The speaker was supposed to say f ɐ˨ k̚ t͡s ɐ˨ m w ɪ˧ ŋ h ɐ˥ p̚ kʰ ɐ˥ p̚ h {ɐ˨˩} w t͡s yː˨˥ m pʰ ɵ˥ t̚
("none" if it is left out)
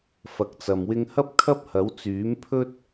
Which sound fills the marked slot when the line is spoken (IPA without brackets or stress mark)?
ɐ˨˥